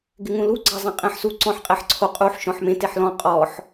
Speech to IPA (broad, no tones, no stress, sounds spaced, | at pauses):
ɡ ɪ ŋ ũ l u ɡ͡ǀ a zˤ ɛ̃ qʼ ɛ̃ ħ s u ǀ ɔ̃ ħ qʼ ɛ ħ ǀʰ o qʼ u ħ ʃ ɔ̃ ħ m ẽ t e ħ l ɔ̃ qʼ ɔ ħ